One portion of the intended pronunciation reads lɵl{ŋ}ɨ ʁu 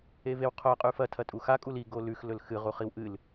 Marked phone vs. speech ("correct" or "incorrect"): incorrect